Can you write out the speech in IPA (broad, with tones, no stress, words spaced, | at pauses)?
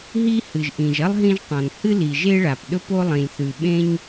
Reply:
ɦi˥ hɨ˩ʒʔĩ˩ʒɐ˥lˠ ɦĩ˥ʒtˤɐ̃˩n hɨ˥li˩ ʒe˥ɭa˩p ɗɵ˥po˥ lˠĩ˩lʲθʉ˩ɓẽ˥ɲ